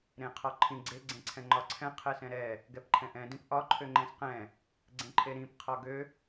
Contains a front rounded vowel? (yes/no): yes